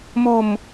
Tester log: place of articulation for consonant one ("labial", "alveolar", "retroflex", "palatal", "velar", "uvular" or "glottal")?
labial